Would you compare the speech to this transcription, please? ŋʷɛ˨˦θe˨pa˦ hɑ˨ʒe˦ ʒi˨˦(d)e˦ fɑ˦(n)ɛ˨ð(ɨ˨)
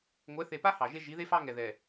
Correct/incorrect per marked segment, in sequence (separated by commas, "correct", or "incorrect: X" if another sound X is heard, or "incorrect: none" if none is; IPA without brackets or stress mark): incorrect: ð, incorrect: ŋ, incorrect: ɛ˨